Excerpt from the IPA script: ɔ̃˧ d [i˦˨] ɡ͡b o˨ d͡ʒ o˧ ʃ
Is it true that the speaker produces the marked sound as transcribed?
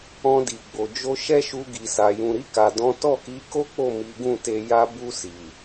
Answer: no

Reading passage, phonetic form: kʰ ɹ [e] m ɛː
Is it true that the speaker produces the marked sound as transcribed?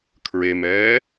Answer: yes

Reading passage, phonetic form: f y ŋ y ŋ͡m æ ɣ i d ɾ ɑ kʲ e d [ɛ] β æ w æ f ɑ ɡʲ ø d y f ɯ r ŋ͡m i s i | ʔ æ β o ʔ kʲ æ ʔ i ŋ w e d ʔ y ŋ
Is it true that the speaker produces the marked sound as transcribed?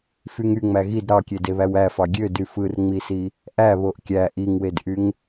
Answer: no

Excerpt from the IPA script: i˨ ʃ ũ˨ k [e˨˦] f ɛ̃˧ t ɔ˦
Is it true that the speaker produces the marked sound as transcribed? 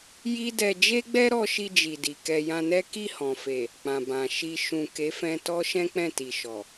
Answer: yes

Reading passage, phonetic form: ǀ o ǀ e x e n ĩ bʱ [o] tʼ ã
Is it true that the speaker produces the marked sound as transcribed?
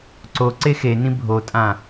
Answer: yes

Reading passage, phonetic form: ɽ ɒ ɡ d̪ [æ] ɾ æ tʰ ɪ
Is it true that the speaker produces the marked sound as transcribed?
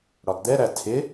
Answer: no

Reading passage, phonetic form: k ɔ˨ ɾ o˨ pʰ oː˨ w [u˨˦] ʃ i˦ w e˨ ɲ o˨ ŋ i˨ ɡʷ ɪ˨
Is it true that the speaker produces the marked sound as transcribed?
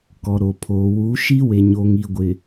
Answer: yes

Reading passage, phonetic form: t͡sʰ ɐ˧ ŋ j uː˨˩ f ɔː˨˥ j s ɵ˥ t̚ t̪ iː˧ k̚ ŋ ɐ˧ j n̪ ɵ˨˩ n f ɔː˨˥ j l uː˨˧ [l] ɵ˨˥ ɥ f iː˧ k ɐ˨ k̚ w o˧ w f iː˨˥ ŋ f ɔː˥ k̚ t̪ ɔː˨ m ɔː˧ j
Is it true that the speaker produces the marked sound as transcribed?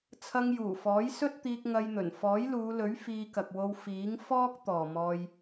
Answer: yes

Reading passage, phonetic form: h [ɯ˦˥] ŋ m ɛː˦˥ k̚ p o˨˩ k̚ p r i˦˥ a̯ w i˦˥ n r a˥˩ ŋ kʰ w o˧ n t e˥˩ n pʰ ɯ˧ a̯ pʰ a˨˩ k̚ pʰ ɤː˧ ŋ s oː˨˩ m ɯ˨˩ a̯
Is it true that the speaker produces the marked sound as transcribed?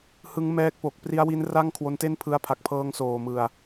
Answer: yes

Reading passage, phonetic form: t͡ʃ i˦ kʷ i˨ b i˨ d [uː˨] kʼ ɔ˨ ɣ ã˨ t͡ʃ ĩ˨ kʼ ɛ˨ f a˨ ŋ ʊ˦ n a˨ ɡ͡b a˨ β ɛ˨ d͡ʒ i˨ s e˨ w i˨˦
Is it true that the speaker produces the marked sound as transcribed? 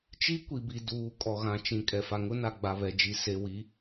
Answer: yes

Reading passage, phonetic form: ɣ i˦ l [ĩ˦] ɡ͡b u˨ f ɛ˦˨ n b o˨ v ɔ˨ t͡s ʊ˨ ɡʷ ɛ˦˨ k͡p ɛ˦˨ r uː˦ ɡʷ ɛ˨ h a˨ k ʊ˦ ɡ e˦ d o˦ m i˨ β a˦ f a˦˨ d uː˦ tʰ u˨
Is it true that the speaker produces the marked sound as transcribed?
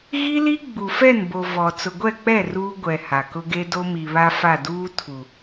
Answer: no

